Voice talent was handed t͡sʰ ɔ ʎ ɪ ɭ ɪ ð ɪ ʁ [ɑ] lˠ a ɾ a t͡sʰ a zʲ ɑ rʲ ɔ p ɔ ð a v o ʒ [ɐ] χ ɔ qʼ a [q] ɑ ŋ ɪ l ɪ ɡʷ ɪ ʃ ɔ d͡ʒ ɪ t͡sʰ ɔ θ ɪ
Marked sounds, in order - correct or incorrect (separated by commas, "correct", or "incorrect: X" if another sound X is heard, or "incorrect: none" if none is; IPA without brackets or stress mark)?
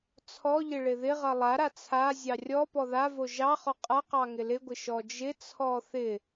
incorrect: ʌ, incorrect: ɑ, correct